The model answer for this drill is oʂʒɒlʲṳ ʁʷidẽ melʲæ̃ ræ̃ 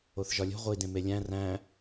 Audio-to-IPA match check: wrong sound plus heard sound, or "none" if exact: ʂ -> θ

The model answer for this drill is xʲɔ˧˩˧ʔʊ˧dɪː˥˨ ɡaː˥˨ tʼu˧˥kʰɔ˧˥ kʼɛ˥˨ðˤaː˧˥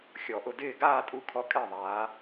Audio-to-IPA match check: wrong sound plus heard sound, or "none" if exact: none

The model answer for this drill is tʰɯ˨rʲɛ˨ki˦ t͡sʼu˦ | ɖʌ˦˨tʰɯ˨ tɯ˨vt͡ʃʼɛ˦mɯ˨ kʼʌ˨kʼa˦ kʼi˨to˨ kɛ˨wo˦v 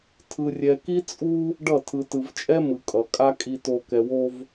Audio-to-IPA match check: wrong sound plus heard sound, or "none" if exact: none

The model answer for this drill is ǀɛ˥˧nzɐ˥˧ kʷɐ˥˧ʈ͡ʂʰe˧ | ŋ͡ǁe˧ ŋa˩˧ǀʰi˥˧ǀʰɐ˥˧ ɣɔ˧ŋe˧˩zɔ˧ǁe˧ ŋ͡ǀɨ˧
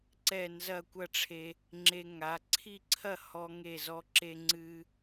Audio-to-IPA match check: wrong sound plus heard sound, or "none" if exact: ɣ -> h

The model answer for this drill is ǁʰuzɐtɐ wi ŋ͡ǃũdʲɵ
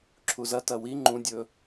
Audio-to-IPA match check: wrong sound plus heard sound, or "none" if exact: none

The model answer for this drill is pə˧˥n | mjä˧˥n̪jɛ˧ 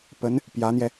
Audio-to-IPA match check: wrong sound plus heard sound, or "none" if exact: m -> p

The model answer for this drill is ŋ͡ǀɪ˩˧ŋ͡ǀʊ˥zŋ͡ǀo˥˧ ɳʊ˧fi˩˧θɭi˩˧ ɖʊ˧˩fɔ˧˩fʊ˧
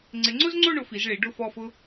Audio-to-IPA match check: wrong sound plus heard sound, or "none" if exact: θ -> z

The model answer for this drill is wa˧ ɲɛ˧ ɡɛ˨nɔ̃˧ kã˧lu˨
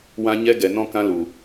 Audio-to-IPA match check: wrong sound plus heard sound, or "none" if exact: a˧ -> ã˧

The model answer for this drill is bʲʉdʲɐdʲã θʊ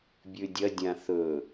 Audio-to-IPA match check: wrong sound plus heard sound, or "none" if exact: ʊ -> ɵ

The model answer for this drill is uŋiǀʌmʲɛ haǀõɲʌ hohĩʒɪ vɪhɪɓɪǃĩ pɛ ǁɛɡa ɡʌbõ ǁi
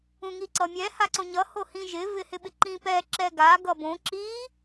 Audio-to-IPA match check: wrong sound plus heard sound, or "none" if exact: u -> ũ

